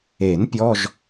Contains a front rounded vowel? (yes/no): no